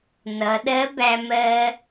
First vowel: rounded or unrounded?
unrounded